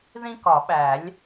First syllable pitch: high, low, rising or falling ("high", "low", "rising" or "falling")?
high